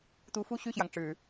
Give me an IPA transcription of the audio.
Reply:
t̪ u˧˥ f u˥˧ ɕ y˥˩ ɕ j ɑ˩ ŋ ʈ͡ʂ ɻ̩˨˩˦

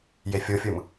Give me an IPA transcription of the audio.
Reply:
j e fʲ o fʲ ɯ m

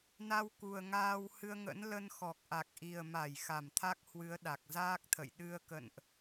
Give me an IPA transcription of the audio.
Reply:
n a˧ w k u˨˩ ə̯ ŋ aː˧ w h ɨ˧ ə̯ ŋ ə̰˧˥ n l ə˧ n x ɔ˨˩ k̚ ʔ a˨˩ k̚ ʔ i˨˩ ə̯ m a˧˩ j x a˧˩ m t̪ʰ a˦˥ k̚ h w ɨ˨˦ ə̯ ɗ a˨˩ k̚ z aː˦˥ k̚ t̪ʰ ə̰˧˨ j ɗ ɨ˧ ə̯ k ə̰˧˨ n ʔ

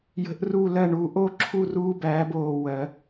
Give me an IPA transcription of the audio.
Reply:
j ə̤˨˩˦ ʔ r u˧˩ l ɜ˧˩ ɳ uː˨˩˦ ʔ o˥˨ ǁʰ u˥˨ r uː˦ b æː˨˦ b oː˧˩ w ɜ˨˩˦

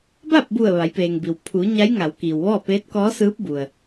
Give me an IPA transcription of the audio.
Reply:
b a˥˨ p̚ b u˧˩ ə̯ ʋ a˩˧ j p eː˩ ŋ b i˩ w pʰ u˩˧ ɲ a˧˥ j ŋ a˩˧ w k iː˩ w ʋ ɔː˥˨ p eː˧˥ t̚ k ɔː˧˥ s ɯː˧˥ p̚ b u˩ ə̯

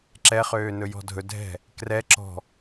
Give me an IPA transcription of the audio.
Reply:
ǁ ɛ χ øː n ɵ j ɔ̤ dʱ ɵ dʱ ɛ̤ | k r ɛ ǁ ɔ̤

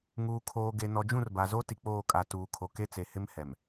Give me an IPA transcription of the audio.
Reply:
ŋ uː˨ kʰ oː˨ ɡ e˨ n ɔ˨ d͡ʒ ũ˦˨ r b a˨ z o˦ t i˨ k͡p oː˦˨ kʼ a˨ t uː˨ kʰ o˨ k e˦ t͡s e˨ h ɪ˦ m h ɛ˨ m

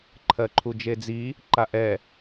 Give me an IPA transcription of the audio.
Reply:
ǃʰ ɜ ǃʰ u d͡ʒ e d͡z i | ǃ a ʔ ɛ

